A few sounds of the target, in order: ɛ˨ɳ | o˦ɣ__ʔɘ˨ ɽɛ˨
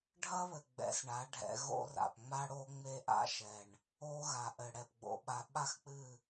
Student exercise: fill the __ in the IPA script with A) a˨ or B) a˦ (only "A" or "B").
A